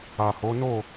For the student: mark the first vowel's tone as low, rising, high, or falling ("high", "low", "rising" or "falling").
low